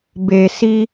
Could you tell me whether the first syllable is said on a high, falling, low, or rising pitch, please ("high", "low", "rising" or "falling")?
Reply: low